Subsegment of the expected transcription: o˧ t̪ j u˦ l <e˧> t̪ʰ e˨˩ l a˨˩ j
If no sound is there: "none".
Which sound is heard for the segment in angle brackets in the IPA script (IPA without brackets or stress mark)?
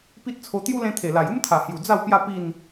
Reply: ẽ˧